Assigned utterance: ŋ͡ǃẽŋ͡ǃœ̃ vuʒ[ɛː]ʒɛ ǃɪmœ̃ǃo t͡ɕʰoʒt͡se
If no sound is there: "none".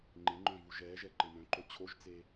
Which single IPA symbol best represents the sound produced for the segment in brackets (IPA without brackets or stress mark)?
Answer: ɛː